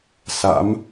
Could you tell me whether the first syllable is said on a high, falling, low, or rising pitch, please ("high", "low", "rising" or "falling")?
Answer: rising